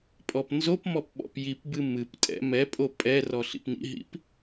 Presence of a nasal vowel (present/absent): absent